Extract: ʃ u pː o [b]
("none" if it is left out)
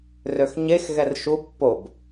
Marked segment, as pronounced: b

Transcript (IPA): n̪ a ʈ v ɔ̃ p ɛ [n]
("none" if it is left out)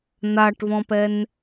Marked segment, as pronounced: n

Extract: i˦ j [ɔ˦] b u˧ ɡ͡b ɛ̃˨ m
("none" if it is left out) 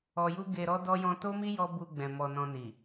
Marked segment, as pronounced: ɔ˦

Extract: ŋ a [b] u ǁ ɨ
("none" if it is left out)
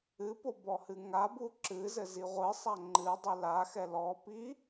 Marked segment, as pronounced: b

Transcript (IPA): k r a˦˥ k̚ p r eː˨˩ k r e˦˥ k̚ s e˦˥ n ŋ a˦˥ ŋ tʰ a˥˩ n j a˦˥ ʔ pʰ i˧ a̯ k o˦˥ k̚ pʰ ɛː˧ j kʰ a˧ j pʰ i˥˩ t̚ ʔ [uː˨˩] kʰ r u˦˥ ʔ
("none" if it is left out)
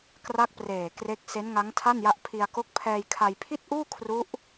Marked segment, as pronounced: uː˥˩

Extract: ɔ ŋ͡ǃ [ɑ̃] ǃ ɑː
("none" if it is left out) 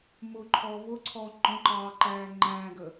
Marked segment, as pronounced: ɔ̃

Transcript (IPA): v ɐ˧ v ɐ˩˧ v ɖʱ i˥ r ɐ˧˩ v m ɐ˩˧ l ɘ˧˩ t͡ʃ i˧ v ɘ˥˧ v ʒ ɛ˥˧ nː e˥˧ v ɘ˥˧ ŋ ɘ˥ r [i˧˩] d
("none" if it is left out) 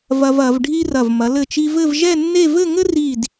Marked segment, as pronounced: i˧˩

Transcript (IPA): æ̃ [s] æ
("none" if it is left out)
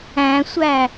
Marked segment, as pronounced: sʷ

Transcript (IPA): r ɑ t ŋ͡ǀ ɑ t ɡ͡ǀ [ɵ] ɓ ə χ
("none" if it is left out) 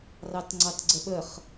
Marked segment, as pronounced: ə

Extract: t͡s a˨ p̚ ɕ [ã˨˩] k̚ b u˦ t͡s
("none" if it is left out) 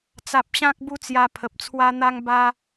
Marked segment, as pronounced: ã˦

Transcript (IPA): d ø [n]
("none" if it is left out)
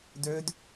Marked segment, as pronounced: d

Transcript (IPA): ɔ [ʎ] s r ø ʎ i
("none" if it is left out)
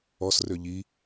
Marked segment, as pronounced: none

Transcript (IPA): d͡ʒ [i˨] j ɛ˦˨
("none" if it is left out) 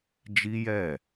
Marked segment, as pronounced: i˦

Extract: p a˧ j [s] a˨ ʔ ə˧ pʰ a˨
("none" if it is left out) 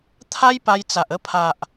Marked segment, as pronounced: t͡s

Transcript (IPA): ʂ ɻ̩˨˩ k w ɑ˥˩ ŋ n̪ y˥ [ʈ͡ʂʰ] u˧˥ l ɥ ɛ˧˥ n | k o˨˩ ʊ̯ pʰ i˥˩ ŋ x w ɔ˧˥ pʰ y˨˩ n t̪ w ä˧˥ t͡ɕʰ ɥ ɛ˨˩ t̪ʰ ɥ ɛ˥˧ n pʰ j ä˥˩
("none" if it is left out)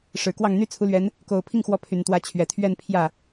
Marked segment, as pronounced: t͡sʰ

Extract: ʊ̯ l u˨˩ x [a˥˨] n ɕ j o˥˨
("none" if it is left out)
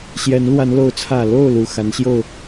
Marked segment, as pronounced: a˨˦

